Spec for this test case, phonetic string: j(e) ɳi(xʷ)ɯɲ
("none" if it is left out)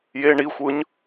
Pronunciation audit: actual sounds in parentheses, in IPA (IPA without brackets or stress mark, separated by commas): e, xʷ